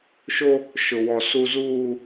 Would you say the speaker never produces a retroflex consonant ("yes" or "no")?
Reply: yes